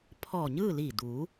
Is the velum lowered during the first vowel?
no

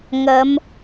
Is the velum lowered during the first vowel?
no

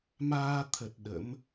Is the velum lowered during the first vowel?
no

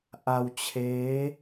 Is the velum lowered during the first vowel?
no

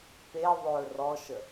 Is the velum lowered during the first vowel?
no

